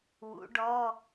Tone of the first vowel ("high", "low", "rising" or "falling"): rising